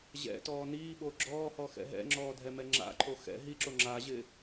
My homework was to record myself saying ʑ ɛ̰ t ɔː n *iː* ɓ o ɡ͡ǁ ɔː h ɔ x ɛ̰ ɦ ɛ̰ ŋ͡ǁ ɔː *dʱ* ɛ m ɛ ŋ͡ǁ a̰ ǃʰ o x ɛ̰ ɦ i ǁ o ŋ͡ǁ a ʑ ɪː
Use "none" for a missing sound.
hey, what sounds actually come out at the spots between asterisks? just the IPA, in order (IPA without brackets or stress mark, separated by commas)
iː, dʱ